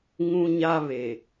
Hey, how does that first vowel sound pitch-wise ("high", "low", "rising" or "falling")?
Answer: high